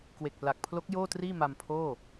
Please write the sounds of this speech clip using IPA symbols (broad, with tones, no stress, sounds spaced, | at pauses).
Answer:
k w e˨˩ k̚ p l a˨˩ k̚ pʰ l o˦˥ k̚ j oː˥˩ t r iː˥˩ m a˧ m pʰ oː˥˩